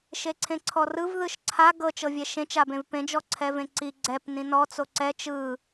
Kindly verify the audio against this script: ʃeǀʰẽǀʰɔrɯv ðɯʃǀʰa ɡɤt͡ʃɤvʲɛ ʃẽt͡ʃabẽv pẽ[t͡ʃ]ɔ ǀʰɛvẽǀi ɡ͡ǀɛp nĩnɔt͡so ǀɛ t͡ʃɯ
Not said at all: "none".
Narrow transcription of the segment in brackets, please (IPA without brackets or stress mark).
d͡ʒ